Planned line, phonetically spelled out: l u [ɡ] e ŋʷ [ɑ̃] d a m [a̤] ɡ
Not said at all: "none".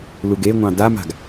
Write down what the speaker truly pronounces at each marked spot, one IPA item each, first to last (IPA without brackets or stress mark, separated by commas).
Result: ɡ, ɑ̃, a̤